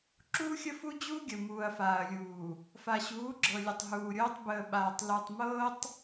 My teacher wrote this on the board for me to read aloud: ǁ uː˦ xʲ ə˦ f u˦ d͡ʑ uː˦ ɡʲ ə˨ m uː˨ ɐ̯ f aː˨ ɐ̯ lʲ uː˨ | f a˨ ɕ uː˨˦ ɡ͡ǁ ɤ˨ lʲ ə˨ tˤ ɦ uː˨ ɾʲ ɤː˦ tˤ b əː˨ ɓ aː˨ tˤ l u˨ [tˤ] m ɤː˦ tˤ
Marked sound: correct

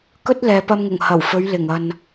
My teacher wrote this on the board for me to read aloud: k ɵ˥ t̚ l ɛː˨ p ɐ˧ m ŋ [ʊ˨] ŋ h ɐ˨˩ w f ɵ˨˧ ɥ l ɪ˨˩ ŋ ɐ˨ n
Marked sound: incorrect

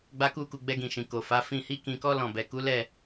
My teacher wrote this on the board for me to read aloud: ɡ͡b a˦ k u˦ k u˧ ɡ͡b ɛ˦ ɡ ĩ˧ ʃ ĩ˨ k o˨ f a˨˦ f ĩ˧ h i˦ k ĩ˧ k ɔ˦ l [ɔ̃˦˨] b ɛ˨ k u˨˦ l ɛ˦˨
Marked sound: correct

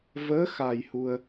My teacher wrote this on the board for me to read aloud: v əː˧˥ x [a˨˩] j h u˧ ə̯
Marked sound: correct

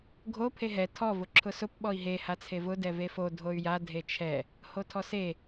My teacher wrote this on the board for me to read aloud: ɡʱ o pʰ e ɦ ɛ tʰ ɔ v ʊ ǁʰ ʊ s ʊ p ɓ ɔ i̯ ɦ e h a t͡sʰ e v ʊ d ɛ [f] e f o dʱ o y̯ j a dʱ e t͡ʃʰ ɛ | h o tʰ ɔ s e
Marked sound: incorrect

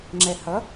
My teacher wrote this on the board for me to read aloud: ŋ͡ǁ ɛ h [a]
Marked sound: incorrect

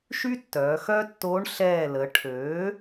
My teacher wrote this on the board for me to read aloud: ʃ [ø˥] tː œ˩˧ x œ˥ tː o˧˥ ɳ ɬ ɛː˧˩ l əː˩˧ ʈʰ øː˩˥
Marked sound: incorrect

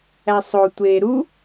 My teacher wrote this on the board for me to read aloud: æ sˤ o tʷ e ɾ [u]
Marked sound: correct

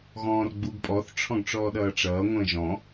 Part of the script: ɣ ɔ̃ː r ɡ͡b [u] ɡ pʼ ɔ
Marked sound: correct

